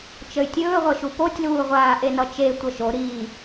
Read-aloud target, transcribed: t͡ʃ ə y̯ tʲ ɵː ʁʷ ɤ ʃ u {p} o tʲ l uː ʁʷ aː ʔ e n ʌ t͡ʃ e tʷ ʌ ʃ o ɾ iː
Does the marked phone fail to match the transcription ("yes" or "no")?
no